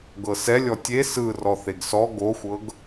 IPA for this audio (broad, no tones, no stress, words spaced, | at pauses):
ɡɤsɛ lʲɔtʲe sɯ rɔθeɡsɔ ɡoxʷɤɡ